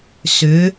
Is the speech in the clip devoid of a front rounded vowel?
no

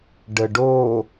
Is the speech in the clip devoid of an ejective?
yes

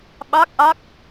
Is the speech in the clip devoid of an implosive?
no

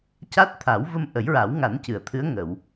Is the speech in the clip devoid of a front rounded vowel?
yes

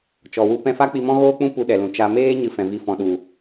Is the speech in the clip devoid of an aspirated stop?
yes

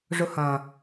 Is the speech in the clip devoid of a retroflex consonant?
no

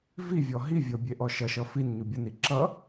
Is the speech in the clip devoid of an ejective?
yes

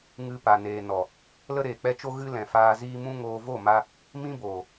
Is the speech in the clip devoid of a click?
yes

